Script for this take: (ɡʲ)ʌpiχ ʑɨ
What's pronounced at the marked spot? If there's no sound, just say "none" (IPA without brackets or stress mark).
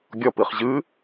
ɡʲ